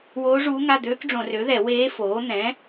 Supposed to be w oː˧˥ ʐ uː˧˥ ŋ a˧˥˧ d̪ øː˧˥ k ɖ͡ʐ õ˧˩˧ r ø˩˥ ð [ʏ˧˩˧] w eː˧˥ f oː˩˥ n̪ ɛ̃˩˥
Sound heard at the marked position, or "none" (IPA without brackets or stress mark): ɛ˧˩˧